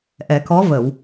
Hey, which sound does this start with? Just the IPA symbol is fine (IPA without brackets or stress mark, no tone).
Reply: ʔ